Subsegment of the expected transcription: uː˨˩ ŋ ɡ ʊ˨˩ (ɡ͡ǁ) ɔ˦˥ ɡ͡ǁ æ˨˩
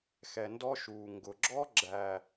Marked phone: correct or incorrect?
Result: correct